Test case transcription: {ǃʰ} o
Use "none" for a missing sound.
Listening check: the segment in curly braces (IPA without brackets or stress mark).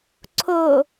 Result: ǀʰ